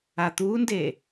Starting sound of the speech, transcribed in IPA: a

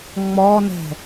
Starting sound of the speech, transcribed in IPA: ŋ͡m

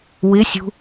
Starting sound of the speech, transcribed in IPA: w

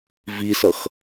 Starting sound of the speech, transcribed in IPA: v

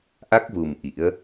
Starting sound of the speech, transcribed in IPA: ʔ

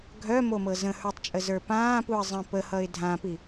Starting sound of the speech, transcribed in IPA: ɡʱ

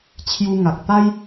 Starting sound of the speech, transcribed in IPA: t͡ɕʰ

